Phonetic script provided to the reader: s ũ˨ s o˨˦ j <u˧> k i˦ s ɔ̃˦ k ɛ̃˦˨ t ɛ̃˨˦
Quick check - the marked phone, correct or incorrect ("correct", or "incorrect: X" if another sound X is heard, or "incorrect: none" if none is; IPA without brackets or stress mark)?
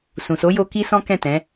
incorrect: o˧